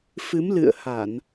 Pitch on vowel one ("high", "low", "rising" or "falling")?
rising